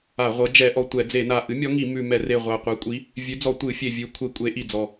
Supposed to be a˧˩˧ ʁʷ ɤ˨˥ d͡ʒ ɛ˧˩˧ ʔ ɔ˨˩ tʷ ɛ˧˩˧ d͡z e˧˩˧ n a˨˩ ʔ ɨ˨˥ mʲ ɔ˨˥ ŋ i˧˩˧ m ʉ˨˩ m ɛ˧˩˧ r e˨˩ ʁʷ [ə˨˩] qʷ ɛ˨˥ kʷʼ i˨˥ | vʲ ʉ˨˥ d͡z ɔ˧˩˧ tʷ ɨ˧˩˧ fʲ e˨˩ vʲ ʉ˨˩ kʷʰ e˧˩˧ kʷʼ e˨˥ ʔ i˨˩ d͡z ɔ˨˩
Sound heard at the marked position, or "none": a˨˩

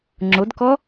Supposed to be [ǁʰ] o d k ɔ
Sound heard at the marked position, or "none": ŋ͡ǁ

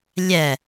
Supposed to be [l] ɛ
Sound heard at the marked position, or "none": lʲ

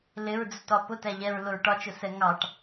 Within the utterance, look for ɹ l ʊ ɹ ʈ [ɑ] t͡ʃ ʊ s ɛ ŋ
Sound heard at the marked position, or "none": ɒ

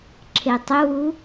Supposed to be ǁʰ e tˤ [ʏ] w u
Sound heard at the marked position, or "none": ʏ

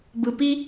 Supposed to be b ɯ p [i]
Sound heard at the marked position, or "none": i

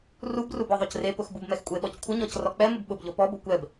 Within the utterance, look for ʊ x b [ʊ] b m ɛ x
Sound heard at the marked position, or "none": u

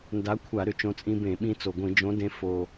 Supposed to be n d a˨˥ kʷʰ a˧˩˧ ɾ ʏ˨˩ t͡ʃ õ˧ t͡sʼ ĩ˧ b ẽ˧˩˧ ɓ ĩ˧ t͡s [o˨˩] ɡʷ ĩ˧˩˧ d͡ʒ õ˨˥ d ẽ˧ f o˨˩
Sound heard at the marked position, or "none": o˨˩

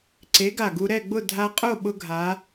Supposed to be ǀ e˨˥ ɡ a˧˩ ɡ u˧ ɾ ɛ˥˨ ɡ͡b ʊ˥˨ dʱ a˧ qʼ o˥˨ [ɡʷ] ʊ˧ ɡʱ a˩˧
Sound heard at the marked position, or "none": ɓ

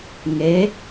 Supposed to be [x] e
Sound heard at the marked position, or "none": ŋ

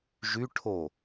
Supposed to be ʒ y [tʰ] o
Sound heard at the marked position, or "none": ʈʰ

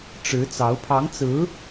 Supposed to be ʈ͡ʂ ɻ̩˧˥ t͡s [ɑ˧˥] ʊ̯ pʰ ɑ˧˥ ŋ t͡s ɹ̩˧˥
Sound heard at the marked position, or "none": ɑ˧˥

